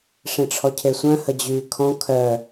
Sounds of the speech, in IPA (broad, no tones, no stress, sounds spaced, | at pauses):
ʂ ẽ ʈ͡ʂʰ ɔ cʰ e sʷ œ̃ h ə d͡ʑ yː kʰ ɔ̃ kʰ œ